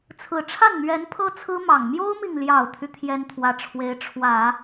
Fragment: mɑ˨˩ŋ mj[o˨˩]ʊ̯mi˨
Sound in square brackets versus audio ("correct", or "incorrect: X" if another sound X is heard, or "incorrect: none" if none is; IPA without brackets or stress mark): incorrect: o˥